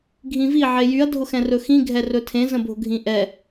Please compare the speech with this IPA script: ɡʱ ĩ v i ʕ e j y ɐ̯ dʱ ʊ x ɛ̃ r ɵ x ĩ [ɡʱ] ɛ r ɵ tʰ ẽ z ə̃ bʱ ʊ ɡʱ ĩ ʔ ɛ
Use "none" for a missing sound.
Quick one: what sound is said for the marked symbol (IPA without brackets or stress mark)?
ɡʱ